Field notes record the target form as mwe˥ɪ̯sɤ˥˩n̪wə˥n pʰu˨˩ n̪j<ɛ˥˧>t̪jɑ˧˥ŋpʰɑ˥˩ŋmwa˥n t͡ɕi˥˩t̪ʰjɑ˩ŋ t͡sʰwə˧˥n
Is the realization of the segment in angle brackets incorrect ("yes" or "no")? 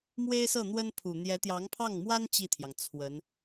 yes